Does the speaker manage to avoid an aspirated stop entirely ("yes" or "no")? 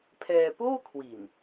no